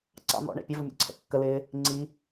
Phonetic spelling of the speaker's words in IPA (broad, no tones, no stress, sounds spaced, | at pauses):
ǀ ɑ̰ n̪ ɔ̰ ɳ ɛ̰ pʲ ʌ v ʊ mʲ ɔ̰ ǀʰ ɛ̰ kː ə l ɪː | ŋ͡ǀ i